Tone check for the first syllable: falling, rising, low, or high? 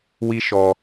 high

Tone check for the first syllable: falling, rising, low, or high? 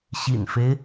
low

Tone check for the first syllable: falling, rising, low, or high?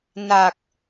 low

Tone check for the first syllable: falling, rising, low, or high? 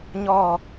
falling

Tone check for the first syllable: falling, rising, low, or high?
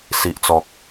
low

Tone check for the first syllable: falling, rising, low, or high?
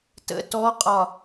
rising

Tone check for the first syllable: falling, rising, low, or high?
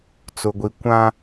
low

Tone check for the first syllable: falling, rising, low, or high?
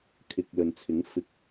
low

